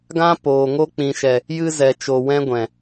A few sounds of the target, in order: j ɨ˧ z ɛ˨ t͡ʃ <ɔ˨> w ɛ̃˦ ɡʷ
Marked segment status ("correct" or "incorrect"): incorrect